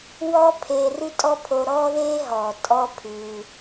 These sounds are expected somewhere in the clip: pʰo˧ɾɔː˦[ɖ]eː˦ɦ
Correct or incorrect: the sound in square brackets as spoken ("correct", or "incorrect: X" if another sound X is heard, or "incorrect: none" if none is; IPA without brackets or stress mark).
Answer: incorrect: ð